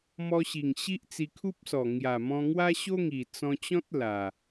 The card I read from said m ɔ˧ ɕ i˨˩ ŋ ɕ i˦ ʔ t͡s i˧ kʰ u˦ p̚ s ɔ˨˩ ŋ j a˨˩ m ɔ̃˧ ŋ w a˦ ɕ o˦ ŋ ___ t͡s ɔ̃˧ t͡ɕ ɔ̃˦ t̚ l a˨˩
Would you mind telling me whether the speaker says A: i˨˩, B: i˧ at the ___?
A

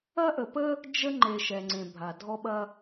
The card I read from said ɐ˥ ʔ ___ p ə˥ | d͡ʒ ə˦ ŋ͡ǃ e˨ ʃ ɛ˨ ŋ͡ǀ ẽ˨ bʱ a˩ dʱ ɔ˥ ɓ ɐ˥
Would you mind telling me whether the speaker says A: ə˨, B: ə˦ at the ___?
A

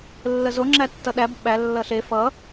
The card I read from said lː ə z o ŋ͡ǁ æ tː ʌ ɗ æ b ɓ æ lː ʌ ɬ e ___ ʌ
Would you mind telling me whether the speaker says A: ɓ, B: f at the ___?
B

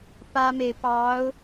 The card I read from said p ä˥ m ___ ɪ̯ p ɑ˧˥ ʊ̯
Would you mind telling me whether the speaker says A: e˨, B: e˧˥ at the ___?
A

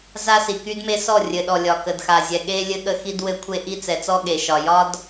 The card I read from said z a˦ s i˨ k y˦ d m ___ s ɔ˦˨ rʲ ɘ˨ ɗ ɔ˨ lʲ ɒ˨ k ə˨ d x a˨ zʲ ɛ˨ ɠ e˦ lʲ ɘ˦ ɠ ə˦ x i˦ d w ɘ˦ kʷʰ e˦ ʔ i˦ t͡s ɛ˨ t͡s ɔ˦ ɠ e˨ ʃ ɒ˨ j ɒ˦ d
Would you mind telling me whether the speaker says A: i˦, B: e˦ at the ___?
B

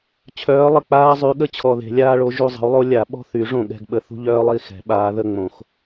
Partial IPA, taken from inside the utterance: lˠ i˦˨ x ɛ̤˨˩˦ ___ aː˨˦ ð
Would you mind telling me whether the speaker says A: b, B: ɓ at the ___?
B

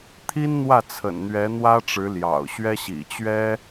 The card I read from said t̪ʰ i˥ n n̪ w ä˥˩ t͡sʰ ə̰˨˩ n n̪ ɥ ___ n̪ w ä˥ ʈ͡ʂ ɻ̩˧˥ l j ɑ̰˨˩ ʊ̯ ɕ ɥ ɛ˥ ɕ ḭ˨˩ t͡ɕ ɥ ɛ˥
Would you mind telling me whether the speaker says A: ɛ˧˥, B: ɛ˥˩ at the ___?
A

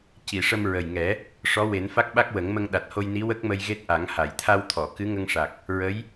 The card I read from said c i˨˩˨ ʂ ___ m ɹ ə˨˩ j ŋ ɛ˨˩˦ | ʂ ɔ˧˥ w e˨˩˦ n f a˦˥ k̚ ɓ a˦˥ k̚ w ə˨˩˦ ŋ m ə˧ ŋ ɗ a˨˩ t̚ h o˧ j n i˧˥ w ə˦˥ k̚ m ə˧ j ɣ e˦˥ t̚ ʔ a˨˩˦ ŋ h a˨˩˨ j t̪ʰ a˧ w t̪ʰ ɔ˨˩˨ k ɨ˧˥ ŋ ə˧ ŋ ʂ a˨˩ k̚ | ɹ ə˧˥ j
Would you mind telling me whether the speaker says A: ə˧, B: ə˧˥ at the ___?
A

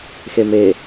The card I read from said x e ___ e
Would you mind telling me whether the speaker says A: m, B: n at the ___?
A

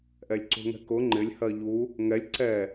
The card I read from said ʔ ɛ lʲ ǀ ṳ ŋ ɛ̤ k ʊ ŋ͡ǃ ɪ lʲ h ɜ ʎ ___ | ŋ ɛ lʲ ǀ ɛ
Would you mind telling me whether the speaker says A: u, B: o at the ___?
A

